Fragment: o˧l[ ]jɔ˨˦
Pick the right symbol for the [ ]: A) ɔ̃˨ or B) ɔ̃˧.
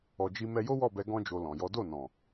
A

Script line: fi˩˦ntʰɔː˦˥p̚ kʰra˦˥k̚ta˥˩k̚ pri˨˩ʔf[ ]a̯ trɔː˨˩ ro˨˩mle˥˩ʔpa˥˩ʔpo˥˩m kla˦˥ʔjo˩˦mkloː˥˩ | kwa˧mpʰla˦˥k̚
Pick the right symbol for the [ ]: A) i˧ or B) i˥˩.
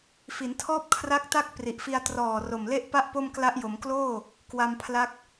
A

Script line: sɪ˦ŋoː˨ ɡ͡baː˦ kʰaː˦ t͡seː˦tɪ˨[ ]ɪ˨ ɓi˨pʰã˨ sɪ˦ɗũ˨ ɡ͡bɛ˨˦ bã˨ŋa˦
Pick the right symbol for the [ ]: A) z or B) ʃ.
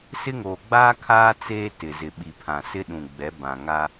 A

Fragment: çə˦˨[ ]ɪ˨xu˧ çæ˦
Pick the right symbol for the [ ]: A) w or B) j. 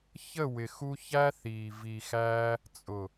A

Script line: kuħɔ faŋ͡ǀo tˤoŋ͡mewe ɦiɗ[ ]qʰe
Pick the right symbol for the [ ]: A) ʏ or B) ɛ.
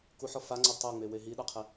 B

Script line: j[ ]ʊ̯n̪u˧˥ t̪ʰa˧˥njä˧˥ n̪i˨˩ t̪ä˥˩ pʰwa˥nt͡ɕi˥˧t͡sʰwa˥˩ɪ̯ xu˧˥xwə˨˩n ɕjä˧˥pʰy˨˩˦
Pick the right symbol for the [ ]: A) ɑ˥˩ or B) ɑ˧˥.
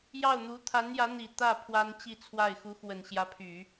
A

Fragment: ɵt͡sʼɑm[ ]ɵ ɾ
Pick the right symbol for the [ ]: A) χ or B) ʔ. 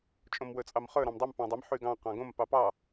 A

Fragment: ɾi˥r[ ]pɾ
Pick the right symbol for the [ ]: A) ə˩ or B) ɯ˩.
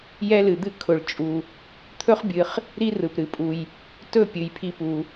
B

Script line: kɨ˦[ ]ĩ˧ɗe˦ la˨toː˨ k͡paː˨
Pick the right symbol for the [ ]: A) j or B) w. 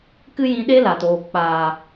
A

